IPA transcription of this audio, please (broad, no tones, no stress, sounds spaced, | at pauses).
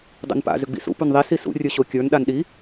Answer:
dˤ ṵ n p a̰ z ʏ ɡ͡b ḭ s ṵ p u n ðˤ i s i s ṵ rʲ ə˞ ɕ o kʲ ə˞ n ɗ a n ɗ i